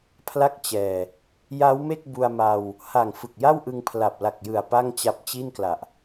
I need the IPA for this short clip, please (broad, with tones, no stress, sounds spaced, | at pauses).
pʰ l a˥˩ k̚ t͡ɕ ɛː˨˩ | j a˦˥ w m e˥˩ k̚ b u˧ a̯ m a˧ w | h a˨˩ ŋ f ɯ˨˩ k̚ j a˥˩ w ʔ ɯ˧ ŋ pʰ l a˨˩ p̚ l a˨˩ k̚ j ɯ˨˩ a̯ p a˥˩ ŋ t͡ɕ a˦˥ p̚ t͡ɕ i˥˩ n k l a˨˩ ʔ